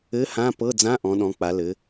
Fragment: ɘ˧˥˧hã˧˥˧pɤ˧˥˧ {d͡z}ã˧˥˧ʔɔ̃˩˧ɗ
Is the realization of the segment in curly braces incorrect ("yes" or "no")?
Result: no